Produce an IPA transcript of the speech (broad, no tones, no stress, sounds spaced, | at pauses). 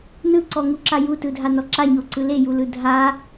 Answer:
n ɯ ǀ ɔ ŋ u ǁ a j u t ɯ dʱ a n ɔ ǁ a ɲ o ǀ ɯ l e j u l ɯ dʱ a